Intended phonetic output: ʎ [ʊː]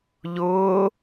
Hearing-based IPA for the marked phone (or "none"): ʊː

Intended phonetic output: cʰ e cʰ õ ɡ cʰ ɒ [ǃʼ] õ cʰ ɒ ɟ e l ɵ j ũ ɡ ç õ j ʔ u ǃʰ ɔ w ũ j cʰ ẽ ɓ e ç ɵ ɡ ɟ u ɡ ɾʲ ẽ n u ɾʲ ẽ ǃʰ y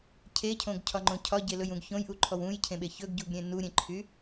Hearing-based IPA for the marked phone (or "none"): ŋ͡ǃ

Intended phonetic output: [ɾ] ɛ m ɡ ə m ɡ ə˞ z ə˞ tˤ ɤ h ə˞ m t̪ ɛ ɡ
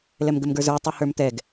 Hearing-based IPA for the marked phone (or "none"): l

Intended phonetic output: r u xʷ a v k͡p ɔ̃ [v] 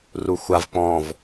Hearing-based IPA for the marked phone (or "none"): v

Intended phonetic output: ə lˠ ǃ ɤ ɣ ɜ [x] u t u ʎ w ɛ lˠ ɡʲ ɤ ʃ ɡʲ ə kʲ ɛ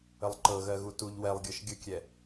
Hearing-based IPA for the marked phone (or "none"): ɣ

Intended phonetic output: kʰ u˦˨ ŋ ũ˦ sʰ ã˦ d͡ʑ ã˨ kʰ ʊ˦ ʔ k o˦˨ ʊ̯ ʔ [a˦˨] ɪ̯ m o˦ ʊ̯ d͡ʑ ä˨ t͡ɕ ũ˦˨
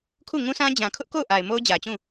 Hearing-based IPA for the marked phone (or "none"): a˨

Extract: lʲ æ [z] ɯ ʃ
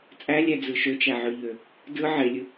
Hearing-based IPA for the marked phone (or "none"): d͡z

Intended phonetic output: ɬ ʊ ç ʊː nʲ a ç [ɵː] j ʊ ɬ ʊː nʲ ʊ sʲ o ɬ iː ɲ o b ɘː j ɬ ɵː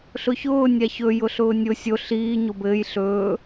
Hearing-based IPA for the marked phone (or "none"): ɵ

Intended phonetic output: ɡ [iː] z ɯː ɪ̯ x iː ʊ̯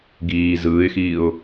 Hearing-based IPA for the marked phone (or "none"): iː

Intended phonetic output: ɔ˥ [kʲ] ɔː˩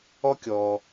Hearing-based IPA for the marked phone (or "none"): kʲ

